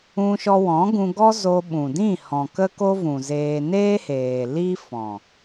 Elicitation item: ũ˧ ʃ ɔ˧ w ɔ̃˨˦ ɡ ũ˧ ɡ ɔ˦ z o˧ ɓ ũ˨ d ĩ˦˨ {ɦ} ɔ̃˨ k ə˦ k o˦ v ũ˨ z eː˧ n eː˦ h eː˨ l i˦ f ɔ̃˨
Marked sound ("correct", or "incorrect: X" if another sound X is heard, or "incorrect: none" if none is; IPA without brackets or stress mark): incorrect: h